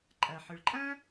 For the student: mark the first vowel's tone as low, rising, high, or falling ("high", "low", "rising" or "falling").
low